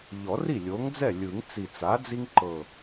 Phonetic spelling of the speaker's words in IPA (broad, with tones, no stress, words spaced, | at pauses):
ʎɔ˨˩˦ri˥˩ lʲo˩˥ŋd͡zɛ˥˩ lʲɯ˨˩˦ŋ t͡si˨˩t͡sa˩˥ d͡zi˦ŋ ǃɤ˨˩